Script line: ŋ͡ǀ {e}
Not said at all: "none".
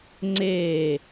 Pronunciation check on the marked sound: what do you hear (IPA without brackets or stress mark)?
e